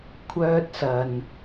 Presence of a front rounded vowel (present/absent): present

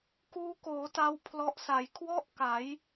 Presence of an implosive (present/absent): absent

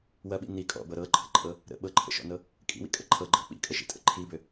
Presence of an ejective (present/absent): present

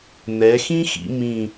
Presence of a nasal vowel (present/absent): present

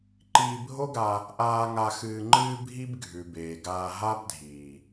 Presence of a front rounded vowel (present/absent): absent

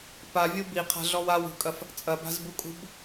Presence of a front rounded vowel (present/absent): absent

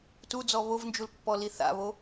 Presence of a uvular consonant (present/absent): absent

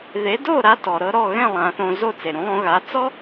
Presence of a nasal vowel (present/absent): present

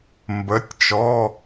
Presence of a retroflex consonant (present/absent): absent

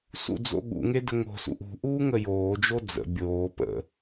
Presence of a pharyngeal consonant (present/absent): absent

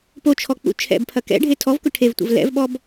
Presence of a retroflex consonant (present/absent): present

